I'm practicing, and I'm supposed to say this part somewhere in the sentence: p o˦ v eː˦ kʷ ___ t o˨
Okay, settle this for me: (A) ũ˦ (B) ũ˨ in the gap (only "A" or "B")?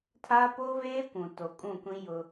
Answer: B